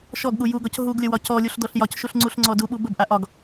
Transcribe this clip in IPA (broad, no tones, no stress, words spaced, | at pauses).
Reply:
ʃɔɡɠu juɡɒc ɦuɡlʲəwɒ cɔlʲuɬdɔɬ jɒcʃuɬŋ͡ǀuɬŋ͡ǀɔ duɓu bəbʔa ʔɒɡ